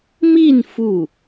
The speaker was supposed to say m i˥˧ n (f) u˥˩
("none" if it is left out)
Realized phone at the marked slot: f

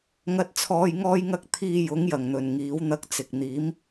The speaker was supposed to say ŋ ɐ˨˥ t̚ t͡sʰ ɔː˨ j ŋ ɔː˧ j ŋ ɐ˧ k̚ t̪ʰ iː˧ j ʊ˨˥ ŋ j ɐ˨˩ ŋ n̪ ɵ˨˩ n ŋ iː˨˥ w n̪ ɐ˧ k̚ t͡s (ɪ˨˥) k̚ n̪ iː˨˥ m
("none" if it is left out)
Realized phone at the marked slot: ɪ˨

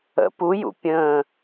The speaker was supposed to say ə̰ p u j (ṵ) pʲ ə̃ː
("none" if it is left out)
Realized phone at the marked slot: ṵ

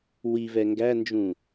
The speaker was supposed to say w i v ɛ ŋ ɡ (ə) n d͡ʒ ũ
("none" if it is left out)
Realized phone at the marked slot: æ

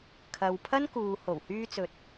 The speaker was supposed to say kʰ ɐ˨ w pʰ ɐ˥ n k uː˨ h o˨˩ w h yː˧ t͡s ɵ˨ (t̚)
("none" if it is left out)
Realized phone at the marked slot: t̚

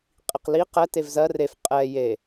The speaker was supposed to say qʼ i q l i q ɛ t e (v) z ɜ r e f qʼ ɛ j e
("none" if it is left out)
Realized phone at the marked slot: v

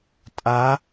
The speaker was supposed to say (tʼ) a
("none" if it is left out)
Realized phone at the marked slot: tʼ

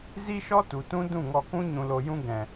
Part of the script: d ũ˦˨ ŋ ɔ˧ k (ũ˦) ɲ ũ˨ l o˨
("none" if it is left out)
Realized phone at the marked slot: ũ˦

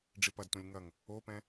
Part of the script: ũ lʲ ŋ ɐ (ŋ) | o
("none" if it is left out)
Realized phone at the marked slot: ŋ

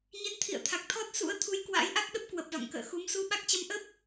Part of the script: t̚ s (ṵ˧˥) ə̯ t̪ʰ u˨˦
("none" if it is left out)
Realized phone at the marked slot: ṵ˧˥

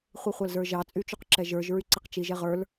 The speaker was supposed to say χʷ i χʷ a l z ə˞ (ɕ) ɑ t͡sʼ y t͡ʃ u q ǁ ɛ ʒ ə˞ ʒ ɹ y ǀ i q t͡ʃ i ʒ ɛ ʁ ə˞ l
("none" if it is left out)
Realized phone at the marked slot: ʒ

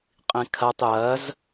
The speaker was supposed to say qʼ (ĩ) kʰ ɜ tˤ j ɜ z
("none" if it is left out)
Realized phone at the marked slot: ĩ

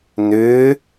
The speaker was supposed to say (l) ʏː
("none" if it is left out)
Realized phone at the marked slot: n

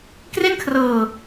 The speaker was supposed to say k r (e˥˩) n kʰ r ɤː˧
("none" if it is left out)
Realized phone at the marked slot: e˥˩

